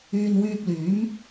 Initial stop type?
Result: plain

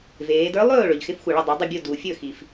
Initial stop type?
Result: plain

